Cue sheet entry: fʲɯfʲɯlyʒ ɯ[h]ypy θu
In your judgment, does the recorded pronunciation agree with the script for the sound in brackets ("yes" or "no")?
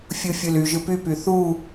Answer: no